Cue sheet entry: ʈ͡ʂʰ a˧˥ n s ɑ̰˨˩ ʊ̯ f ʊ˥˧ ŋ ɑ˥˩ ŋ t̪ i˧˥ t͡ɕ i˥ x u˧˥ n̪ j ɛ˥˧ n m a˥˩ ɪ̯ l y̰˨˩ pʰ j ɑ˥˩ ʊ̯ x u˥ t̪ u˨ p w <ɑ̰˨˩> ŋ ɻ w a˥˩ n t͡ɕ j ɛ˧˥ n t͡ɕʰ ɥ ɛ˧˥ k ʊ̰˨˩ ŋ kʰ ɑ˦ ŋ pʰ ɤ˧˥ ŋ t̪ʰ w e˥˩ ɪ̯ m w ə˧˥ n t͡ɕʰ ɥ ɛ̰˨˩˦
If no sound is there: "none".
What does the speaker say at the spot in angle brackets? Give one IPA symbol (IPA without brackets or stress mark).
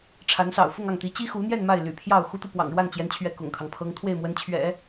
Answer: ɑ̰˨˩